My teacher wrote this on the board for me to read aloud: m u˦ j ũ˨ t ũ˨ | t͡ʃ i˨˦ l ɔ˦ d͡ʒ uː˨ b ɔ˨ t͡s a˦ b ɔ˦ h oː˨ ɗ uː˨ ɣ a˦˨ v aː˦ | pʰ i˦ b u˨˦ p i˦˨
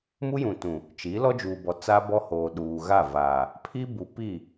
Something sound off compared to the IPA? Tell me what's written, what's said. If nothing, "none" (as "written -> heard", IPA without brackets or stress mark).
aː˦ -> aː˨